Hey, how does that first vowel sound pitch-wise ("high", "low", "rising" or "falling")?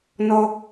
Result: high